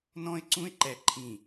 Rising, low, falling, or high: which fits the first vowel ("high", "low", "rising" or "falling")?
high